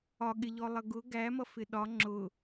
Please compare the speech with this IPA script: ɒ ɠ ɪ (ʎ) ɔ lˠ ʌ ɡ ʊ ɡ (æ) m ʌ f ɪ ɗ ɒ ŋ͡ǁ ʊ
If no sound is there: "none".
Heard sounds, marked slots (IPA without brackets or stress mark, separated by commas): ʎ, æ